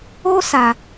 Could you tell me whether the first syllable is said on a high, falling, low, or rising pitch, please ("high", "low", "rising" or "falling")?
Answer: high